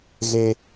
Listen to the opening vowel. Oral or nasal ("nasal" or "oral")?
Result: oral